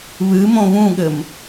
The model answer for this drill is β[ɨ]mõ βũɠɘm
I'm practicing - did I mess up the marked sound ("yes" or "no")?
no